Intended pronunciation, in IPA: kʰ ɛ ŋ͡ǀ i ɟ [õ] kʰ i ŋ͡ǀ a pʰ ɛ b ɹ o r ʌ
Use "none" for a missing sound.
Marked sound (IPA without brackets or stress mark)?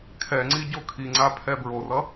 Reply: o